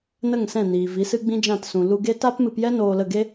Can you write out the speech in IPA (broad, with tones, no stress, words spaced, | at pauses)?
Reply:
nə˦˨ŋsɛ̃˦˨niː˨ vi˨˦sɨ˦ɡ͡bĩ˦d͡ʒã˦˨t sũ˨ lu˧ɡe˦ ta˦pmɨ˧pjɛ˦ noː˧lə˦˨ ɡe˦